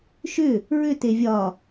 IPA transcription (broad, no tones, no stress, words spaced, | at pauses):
ʃʏ | ɹʏ tevʲɒ